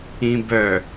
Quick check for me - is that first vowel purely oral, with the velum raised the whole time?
no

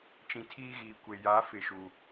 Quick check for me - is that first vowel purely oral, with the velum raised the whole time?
no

